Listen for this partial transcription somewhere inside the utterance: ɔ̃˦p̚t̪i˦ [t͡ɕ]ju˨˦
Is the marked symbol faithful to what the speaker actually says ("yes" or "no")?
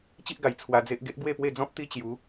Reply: yes